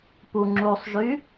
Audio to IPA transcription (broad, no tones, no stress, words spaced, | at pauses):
puŋ͡ǁusˤʒy